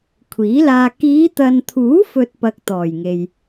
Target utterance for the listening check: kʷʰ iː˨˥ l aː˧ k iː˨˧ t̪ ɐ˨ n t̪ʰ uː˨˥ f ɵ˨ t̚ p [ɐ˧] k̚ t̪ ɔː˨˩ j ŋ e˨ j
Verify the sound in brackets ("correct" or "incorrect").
correct